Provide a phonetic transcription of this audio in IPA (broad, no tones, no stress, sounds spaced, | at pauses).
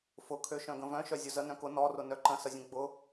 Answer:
f ʊ kʰ ø ʃ œ̃ ɡ ə̃ v œ̃ ʃ œ zʲ ʊ z ə n œ̃ k ʊ n ɔ r ʊ n œ ǃ ə̃ s ə zʲ ə̃ ɡ͡b ʊ